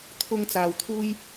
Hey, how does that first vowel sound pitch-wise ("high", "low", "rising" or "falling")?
high